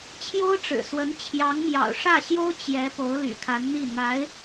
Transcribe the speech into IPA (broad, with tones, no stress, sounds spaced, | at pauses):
t͡ɕʰ j o˥ ʊ̯ ʈ͡ʂ ɻ̩˨˩ s w ə˧˥ n t͡ɕʰ j ɑ˧˥ ŋ m j ɑ̰˨˩ ʊ̯ ʂ ä˥˩ ɕ j o˥ ʊ̯ t͡ɕ j ɛ˧˥ p o˧˥ ʊ̯ l y̰˨˩ kʰ a˧˥ n n̪ i˥˩ n̪ a˧˥ ɪ̯